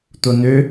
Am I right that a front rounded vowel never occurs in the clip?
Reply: no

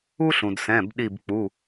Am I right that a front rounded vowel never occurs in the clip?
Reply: yes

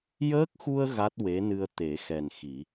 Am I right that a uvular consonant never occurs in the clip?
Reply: yes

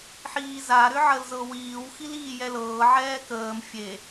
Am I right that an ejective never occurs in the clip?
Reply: yes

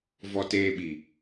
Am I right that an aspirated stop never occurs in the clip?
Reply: yes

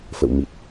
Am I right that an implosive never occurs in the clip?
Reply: yes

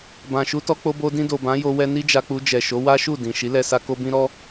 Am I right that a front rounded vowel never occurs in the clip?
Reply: yes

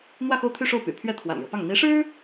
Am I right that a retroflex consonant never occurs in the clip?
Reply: no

